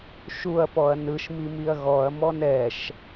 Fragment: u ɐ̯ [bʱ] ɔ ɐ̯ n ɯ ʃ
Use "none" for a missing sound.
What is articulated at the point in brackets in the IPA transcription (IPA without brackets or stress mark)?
p